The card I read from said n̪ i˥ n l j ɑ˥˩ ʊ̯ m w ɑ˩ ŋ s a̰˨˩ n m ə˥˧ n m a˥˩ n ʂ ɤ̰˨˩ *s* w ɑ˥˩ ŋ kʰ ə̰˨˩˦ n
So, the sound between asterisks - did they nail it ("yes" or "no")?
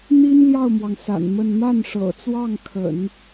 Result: no